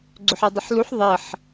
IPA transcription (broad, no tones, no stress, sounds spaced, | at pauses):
ɡ͡ǀ ʏ ħ ɛ dˤ ə ħ l u ħ ðˤ ɛ ħ